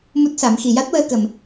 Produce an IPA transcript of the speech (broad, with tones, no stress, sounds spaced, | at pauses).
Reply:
m u˦˥ t̚ s a˨˩˦ m x i˨˩ j a˦˥ t̚ w əː˧ k ə˨˩ m